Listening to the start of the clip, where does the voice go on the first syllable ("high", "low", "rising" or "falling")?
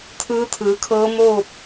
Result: rising